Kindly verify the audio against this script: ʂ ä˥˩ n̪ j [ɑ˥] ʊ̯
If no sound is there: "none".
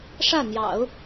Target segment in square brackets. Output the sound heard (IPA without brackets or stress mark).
ɑ̰˨˩˦